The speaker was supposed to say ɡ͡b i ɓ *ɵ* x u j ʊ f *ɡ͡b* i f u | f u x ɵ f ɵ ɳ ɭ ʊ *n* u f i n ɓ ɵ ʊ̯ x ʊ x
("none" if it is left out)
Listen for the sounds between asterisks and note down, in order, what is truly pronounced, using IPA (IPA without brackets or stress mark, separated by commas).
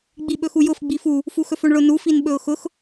ɵ, ɡ͡b, n